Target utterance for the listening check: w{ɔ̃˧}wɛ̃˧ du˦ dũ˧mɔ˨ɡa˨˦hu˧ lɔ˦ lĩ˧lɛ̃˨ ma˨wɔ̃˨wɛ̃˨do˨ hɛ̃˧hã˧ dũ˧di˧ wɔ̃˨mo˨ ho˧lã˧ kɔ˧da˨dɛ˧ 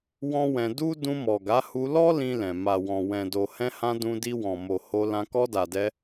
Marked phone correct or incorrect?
incorrect